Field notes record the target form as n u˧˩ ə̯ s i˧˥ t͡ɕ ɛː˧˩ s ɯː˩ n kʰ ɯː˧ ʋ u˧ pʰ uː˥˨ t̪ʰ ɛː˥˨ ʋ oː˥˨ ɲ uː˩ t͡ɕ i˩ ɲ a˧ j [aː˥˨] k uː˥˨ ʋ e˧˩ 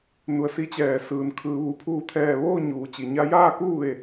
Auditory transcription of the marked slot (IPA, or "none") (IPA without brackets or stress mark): aː˥˨